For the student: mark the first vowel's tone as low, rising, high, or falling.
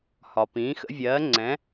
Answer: low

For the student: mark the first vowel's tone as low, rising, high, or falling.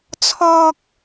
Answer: high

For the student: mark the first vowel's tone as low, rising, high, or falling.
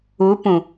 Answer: rising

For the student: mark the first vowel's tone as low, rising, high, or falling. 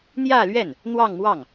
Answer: falling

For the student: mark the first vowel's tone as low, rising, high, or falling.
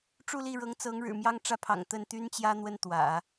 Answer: falling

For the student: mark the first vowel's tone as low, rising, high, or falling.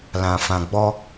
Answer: low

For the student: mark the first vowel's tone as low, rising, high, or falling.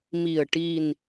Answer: low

